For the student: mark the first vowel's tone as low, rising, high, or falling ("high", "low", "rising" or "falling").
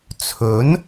rising